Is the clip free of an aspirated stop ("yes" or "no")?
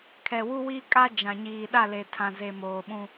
no